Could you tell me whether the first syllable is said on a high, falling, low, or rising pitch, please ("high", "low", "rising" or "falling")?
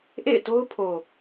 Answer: falling